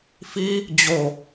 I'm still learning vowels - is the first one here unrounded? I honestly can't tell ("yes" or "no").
yes